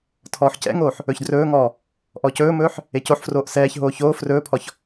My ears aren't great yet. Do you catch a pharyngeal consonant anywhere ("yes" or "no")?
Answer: yes